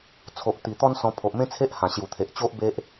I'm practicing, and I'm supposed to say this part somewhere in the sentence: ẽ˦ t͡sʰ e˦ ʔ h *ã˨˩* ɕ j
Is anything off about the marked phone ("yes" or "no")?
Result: no